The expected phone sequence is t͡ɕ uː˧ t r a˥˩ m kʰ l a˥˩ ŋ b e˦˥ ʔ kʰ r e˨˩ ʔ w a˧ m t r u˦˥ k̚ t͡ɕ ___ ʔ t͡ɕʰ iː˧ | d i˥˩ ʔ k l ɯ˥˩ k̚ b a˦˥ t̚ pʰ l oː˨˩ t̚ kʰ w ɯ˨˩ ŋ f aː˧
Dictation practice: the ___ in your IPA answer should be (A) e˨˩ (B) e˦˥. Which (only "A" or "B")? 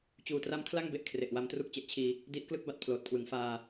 B